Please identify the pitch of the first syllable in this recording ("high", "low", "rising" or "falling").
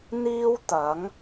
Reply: high